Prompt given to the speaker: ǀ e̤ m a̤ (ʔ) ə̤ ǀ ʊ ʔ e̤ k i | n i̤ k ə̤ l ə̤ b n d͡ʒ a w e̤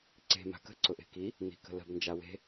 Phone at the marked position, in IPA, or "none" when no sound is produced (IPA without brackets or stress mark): k